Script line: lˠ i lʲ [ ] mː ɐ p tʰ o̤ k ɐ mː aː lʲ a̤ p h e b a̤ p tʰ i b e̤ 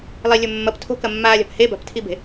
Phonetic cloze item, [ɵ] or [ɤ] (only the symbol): ɵ